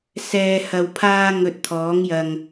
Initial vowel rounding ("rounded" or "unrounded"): unrounded